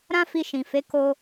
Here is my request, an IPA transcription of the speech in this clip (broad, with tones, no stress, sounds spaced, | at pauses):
ɾ ã˦ f i˧ ʃ ĩ˨ f e˨˦ k o˦